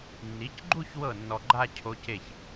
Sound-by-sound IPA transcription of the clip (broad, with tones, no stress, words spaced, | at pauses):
nːi˩˥cɡ͡ǃu˥˧ç wɤ˥˩nːɔ˨ɡ͡ǃa˥˧ cʰo˧˥ce˥˩ç